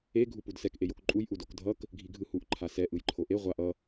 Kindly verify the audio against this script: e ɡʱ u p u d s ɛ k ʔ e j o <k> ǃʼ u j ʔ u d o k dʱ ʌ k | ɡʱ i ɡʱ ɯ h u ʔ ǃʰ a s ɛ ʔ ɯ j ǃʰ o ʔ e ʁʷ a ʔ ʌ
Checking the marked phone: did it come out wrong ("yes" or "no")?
no